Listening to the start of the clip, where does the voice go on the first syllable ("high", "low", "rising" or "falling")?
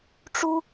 high